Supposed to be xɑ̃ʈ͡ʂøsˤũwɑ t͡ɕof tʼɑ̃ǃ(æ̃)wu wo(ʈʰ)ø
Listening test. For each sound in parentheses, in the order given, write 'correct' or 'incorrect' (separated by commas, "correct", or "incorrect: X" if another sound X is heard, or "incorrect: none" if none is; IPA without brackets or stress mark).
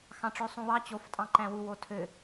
correct, incorrect: tʰ